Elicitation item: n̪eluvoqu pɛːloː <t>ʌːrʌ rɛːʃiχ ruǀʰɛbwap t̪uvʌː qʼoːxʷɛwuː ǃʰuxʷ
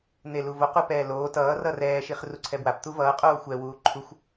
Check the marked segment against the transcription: correct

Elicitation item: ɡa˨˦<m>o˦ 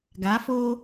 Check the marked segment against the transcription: incorrect: f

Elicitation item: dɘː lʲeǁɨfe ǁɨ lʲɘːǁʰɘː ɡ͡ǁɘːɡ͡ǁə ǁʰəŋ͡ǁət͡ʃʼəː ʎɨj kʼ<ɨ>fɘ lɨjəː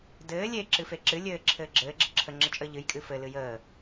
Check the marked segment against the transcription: correct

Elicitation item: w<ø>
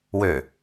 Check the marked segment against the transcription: correct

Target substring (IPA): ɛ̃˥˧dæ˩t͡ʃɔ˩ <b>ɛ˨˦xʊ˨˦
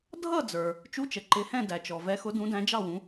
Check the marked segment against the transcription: incorrect: v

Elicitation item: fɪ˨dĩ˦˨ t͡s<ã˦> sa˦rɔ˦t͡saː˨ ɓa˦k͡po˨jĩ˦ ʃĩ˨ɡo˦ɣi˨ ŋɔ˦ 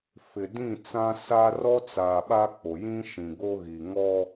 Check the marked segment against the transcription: correct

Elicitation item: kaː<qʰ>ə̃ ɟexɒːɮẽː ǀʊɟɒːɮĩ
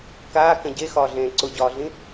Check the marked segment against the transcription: incorrect: k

